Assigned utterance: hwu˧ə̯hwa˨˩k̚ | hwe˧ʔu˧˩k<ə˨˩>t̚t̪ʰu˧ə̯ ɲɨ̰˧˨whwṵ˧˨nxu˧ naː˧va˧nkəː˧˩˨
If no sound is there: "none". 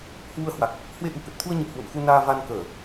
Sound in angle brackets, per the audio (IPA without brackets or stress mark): ə˨˩